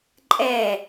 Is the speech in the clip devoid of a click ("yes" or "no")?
no